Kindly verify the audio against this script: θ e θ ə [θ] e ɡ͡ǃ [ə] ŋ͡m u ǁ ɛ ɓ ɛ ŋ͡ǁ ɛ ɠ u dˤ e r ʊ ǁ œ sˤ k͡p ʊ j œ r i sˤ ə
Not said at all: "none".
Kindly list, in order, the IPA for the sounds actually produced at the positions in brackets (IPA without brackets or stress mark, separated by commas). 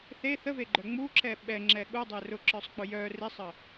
v, œ